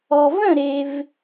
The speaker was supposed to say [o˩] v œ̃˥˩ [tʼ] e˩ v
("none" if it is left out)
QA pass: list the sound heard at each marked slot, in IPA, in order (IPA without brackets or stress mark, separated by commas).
ɔ˩, ɾ